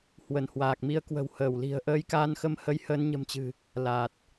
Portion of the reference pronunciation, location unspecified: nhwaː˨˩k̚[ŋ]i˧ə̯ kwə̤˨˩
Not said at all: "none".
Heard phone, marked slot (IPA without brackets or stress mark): m